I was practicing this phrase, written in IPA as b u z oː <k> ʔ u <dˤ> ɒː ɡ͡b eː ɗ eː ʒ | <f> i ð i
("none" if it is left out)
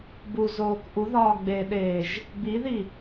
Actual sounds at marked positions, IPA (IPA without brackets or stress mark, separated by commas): k, ð, b